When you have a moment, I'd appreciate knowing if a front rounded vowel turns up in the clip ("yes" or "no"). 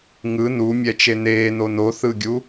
no